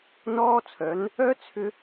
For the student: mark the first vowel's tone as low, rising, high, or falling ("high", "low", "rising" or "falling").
high